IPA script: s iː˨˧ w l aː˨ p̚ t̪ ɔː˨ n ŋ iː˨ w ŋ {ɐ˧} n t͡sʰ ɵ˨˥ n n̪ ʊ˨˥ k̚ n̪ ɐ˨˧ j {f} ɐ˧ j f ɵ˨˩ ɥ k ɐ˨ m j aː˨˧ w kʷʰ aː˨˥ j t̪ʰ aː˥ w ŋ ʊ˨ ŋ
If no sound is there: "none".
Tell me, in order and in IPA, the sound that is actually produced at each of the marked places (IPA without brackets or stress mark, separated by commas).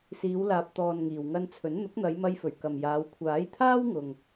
ɐ˧, m